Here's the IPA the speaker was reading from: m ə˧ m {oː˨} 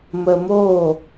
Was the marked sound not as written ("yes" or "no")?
yes